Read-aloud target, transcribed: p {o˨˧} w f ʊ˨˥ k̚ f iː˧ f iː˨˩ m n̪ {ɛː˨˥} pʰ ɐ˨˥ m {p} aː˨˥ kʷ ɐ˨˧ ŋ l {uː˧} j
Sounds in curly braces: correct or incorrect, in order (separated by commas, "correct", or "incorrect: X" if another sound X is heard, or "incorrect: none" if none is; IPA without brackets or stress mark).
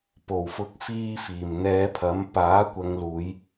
incorrect: o˨˩, incorrect: ɛː˨˧, correct, incorrect: uː˨˧